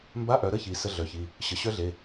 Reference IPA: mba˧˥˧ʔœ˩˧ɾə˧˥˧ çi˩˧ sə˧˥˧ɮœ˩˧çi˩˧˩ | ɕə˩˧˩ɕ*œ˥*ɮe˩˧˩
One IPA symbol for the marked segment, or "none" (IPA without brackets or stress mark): œ˥